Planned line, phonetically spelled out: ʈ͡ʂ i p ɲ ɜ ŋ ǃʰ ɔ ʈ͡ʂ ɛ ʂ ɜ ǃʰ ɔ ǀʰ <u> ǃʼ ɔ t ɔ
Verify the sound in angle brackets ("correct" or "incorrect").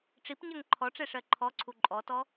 correct